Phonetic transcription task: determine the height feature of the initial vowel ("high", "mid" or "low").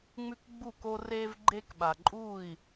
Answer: high